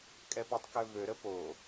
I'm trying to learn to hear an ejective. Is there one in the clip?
yes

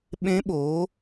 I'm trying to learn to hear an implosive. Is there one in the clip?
yes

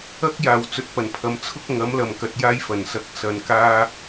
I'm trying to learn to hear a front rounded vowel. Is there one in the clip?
no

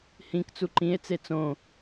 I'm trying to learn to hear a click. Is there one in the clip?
yes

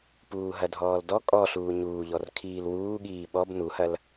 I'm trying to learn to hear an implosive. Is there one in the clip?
yes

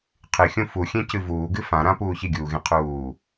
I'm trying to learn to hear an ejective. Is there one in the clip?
no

